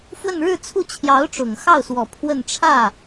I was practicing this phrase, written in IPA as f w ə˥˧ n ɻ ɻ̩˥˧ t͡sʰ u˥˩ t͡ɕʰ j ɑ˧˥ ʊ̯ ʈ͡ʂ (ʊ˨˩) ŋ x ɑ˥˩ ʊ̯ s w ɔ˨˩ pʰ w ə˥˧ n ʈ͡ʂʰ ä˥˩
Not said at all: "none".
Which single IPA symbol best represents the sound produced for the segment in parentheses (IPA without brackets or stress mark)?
ʊ˨˩